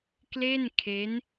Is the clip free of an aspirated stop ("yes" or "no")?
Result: no